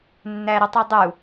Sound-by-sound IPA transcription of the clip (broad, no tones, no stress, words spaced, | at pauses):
nːæɾitˤɪdˤu